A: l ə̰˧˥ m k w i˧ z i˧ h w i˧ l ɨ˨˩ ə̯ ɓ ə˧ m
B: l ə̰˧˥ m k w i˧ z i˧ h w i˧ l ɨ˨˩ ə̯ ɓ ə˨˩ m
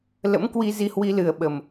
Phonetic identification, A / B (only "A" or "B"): B